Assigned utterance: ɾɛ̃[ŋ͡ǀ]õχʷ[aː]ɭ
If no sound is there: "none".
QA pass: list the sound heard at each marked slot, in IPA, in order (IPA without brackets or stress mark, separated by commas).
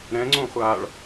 ŋ͡ǀ, aː